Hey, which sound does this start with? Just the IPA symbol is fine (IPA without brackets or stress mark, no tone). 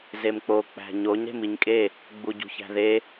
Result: z